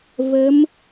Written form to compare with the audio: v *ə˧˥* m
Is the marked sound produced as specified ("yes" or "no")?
yes